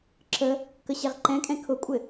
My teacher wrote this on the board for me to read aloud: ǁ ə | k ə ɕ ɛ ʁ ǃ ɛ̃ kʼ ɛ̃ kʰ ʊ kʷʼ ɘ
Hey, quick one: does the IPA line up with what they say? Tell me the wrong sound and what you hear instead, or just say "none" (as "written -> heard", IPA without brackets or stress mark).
none